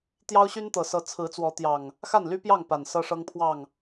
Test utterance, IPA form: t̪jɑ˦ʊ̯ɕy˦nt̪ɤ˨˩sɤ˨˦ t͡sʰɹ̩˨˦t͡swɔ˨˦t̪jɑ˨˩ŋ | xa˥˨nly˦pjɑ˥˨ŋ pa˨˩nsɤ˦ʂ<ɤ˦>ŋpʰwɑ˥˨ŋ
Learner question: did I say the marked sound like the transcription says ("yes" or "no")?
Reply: yes